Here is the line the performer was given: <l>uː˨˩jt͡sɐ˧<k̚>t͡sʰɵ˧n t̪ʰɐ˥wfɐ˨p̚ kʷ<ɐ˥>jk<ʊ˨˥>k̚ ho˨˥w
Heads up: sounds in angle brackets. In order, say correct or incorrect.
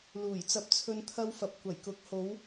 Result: correct, incorrect, incorrect, correct

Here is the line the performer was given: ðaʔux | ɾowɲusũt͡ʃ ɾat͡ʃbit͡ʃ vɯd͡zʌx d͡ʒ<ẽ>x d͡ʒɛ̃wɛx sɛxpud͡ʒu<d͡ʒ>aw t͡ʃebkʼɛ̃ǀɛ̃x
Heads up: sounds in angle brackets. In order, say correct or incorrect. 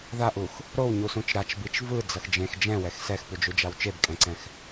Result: correct, correct

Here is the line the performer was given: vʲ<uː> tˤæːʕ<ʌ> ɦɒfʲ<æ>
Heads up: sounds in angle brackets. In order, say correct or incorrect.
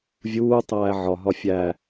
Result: correct, incorrect, correct

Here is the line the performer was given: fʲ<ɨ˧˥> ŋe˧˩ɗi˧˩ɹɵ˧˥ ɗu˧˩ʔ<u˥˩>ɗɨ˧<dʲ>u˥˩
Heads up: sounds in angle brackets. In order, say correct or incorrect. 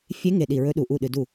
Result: incorrect, correct, incorrect

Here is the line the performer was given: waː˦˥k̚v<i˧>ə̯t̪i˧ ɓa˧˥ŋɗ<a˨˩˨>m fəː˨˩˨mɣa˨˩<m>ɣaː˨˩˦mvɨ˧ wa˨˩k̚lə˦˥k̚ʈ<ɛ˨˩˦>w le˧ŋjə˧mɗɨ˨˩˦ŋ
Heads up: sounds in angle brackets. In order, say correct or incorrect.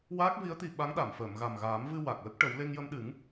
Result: incorrect, correct, correct, incorrect

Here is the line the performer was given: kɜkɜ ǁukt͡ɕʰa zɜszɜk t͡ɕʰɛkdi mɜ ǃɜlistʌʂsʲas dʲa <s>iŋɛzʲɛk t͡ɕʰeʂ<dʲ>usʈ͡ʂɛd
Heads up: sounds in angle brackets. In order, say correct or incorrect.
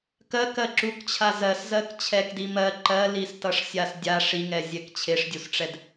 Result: incorrect, correct

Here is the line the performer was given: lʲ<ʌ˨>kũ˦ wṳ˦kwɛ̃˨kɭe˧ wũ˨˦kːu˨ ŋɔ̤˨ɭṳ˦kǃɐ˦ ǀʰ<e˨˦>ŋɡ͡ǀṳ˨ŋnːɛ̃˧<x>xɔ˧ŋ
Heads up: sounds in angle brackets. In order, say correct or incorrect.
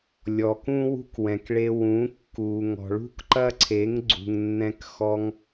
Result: incorrect, correct, incorrect

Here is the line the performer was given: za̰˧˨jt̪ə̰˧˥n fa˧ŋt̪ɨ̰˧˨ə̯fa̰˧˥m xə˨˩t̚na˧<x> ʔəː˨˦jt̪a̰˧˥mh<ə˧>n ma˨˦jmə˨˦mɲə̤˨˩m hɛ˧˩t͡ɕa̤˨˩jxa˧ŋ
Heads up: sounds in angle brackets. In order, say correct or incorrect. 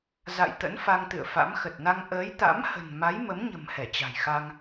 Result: incorrect, incorrect

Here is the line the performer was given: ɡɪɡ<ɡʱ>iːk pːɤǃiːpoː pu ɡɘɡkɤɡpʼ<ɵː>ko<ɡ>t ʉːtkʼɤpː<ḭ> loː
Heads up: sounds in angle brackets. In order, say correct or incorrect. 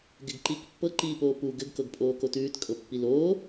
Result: incorrect, incorrect, incorrect, incorrect

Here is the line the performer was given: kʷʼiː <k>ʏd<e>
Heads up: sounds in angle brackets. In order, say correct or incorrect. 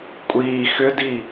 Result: incorrect, incorrect

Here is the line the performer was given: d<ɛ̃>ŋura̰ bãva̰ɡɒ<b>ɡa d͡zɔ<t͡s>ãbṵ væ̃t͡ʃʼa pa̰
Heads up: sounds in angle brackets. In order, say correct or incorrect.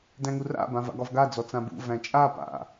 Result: incorrect, incorrect, correct

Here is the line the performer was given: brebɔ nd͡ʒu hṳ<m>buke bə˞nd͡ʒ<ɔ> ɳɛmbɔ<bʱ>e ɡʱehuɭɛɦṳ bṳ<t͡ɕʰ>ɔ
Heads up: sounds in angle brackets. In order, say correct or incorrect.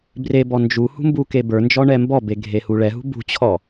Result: correct, correct, incorrect, correct

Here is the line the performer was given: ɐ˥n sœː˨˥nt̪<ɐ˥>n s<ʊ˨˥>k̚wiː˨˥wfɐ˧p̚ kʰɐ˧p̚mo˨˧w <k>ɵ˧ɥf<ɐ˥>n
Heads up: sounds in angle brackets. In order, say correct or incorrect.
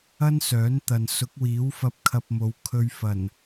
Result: incorrect, correct, incorrect, incorrect

